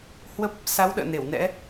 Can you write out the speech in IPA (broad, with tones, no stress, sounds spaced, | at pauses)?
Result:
h w ə˦˥ p̚ | s a˨˦ w ɗ ə̰ː˧˨ n e˧˩ w n ɛ̰˧˥